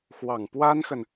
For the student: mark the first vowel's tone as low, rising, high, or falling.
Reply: low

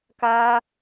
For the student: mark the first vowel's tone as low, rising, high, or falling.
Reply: high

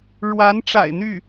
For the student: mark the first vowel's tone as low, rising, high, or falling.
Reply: rising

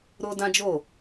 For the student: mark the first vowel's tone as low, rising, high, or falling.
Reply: high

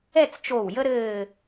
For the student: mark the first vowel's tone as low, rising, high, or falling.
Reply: falling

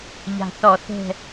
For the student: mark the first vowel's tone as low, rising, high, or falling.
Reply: low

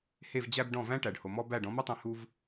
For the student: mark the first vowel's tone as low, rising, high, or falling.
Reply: falling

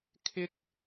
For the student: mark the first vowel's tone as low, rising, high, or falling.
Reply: high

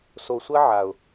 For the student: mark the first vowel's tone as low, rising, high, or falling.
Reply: low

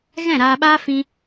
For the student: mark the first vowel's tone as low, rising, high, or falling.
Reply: falling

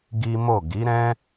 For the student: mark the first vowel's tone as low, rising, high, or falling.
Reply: high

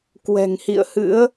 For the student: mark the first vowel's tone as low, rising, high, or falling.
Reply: low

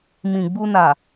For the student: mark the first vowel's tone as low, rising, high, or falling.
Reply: low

